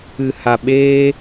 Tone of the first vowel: low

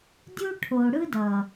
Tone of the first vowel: high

